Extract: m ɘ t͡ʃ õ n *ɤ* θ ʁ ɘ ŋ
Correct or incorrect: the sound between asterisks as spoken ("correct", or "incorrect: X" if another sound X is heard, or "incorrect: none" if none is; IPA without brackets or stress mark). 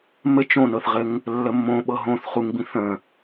correct